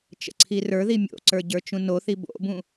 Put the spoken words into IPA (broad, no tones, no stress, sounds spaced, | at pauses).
t͡ʃ ə̰ ǀʰ i r ə˞ ð i mʲ o̰ ǀ ə˞ ɟ ə˞ t͡ʃ ũ n o θ i b o̰ b ũ